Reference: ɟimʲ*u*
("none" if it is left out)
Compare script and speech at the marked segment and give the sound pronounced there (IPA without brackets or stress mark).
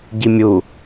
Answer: u